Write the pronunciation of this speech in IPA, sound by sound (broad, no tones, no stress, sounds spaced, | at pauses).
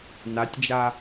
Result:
n a tʲ d͡ʒ a